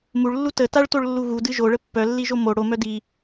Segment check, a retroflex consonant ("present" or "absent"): present